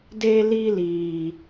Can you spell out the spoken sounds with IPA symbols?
d e˨ l i˨ l iː˨

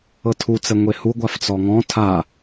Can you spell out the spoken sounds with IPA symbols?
ɤ tʰ u t͡s ɛ ŋʷ e h u ɡʷ a f t͡s ɔ ŋ ɔ̃ tʰ a

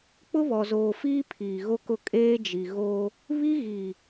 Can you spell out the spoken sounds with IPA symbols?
k͡p ʊ˦ β ɔ˨ z oː˨ f iː˦ pʰ iː˨ ɣ o˦ k ʊ˦˨ kʼ eː˦ d͡ʒ i˨ ɣ o˦ | β i˦ ɣ i˨

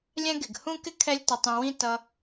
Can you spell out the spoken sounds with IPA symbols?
lʲ ɛ̃˥ ɡ ɪ˩ ɡ h ũ˥ k ɪ˥ kʰ ɛ˥ lʲ t ʌ˧ tˤ ũ˧ w ĩ˥ t ʌ˧

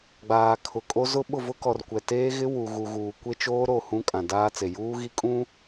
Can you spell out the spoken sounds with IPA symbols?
ɡ͡b aː˨ kʰ ʊ˨ kʼ o˦ z ʊ˦ ɓ ʊ˦˨ v ʊ˦ k ɔ˨ r kʷ ɛ˨ t eː˦ ɣ ɪ˦ w u˨ ɣ u˨ ɣ uː˨ kʷ e˦ t͡ʃ oː˦ ɾ o˦˨ h ũ˦ kʼ ã˨ d aː˦ t͡s e˨ j uː˦ ɣ i˦ kʼ ũ˦

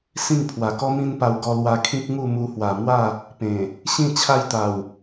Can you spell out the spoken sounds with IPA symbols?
s ĩ˥˧ ŋ pʰ w a˨˩ k ɔ˦ m ĩ˦ n p a˧ w ɡ ɔ˧ l w a˧ kʰ ĩ˦ k̚ ŋ u˥˧ m u˧ h w a˨˩ m w a˥˧ | p ẽ˨˩ | ɕ ĩ˥˧ t͡ɕʰ a˦ j t̪ a˨˩ w

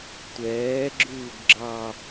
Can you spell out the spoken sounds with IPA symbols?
tʷ ɛː ɡ͡ǁ ʉː ɡ ɡ͡ǁ ɑ

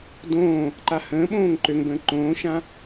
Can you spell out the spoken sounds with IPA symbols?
d õː | ǃ a h ə̃ː ɓ õː ŋ ǃ ø ŋ b ə̃ː ǃ õː ʃ ã

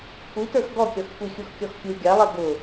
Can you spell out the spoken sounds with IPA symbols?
kʷʰ i t ə˞ x ɡ ɔ kʲ ɔ x kʷ i xʲ u x kʲ ɔ x fʲ u ɡʲ a lˠ ɛ ɡ ʊ

